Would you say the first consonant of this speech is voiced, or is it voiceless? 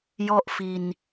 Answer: voiced